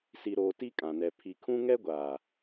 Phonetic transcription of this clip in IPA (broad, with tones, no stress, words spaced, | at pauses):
si˨ɾoː˨ ti˦kʼã˨nɛ˨ pʰi˨kʰũ˦ ŋɛ˦ɡʷaː˨